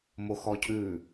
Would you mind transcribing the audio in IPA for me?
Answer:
m o x ɔ cʰ ʉ

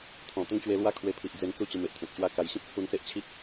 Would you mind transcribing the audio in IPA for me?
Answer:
t̪ʰ ɔ̃˨˩ t̪ ə˦ ŋ t͡ɕ w e˧ l w a˥˧ kʰ w e˧ pʰ i˨ ʔ d͡z e˧ n t͡s u˥˧ t͡ɕ ə˧ m e˨ ʔ t̪ʰ ẽ˨ t̚ ɕ w a˥˧ k a˧ j ɕ ĩ˦ p̚ t͡sʰ u˧ n s e˦ ʔ t͡ɕʰ i˦ k̚

